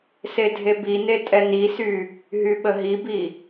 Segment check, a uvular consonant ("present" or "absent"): absent